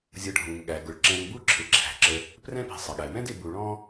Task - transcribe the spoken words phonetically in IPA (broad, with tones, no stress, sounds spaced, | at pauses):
zʲ ʌ˨ ɖʱ ũ˩ ŋ ɠ æ˩ ɡ ʊ˩ ɭ ǁ ɛ̃˨ ŋ b u˥ ǁʰ ɪ˩ ǁʰ æ̤˩ ǁ ə˨ | p r ɛ̃˥ p i̤˨ sˤ ə˩ ɠ æ˩ m ɛ̃˦ d ɪ˨ b u˨ ɭ ɔ̃˥